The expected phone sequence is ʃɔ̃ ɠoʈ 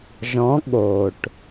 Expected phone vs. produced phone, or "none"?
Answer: ʃ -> ʒ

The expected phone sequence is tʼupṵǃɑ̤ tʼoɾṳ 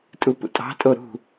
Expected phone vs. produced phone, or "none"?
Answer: ǃ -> tʼ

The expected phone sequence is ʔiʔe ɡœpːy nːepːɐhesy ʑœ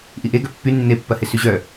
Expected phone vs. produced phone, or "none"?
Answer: none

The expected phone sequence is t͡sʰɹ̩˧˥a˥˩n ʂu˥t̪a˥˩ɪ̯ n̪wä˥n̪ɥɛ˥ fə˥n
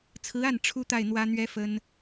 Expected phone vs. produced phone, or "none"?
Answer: ʂ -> ʈ͡ʂʰ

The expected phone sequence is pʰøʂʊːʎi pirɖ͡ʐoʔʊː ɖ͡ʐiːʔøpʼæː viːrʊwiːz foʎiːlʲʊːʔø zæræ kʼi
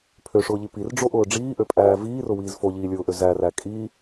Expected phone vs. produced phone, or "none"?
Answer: none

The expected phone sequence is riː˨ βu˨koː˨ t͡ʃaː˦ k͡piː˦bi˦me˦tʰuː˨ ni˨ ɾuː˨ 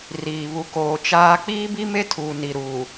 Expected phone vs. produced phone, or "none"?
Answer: none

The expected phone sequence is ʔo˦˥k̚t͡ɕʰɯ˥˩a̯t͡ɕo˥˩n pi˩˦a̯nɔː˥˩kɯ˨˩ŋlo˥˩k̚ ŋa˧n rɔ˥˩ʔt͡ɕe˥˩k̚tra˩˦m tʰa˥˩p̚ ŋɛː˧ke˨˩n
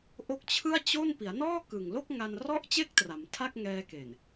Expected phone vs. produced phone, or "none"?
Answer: p̚ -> k̚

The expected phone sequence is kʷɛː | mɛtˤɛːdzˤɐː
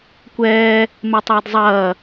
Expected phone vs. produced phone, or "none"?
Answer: none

